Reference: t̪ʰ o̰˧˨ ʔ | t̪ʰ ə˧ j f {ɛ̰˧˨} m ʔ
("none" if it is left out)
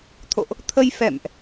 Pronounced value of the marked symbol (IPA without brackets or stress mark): ɛ̰˧˨